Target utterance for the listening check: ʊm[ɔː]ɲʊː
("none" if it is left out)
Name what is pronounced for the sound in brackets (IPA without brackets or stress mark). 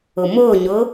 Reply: ʊː